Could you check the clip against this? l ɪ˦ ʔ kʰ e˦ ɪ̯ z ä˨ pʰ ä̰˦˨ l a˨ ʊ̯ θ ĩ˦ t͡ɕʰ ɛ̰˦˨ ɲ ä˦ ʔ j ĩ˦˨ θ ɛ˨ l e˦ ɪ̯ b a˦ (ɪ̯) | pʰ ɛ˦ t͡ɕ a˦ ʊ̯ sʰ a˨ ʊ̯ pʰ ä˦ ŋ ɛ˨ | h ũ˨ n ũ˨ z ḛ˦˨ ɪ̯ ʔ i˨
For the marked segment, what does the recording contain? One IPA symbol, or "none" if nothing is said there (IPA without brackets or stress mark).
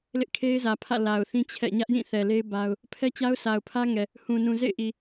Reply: ʊ̯